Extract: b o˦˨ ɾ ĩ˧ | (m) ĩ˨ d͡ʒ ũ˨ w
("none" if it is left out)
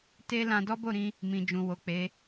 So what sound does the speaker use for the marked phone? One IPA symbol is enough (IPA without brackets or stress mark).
m